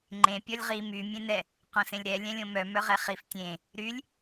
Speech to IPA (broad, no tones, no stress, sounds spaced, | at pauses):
ŋ͡ǃ ẽ pʲ ɔ lʲ ʁ i m y mʲ ẽ n ɛ | q õ s ẽ lʲ ɾ ɛ lʲ ɛ̃ lʲ õ m œ m œ ʁ ɛ χ i f tʲ ẽ | ɾ y lʲ